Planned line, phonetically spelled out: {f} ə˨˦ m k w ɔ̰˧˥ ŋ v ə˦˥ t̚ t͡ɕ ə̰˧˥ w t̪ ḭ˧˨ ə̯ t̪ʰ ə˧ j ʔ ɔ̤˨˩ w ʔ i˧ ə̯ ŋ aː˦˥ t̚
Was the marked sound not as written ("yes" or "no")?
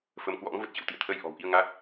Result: no